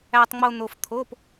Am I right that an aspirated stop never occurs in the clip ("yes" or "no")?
no